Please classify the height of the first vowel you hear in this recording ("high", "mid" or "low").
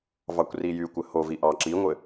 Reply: low